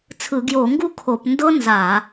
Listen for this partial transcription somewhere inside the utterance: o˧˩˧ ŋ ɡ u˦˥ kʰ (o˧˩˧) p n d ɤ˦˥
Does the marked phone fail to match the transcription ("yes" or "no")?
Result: no